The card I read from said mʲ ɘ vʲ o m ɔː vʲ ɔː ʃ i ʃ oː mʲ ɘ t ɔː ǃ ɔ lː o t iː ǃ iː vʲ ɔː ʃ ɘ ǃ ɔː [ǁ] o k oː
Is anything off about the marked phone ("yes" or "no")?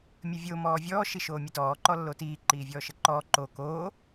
yes